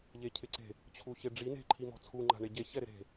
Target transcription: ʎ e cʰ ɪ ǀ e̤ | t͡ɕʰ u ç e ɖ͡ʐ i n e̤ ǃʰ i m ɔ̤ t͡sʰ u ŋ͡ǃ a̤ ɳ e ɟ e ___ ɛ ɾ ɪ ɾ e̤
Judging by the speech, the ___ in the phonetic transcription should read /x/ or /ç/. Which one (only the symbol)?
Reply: ç